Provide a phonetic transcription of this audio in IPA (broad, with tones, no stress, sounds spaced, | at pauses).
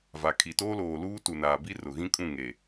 v a˨ kʰ i˨ t oː˦ l oː˨ l uː˦ t u˨ n aː˨ b i˦ r ʊ˨ ɣ ĩ˦ kʼ ũ˦˨ ŋ e˨